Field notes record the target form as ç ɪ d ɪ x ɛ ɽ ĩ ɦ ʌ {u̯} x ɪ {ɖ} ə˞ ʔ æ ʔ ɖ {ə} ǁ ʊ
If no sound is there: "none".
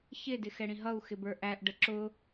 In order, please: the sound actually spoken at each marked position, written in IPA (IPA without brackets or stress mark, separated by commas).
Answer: u̯, b, ə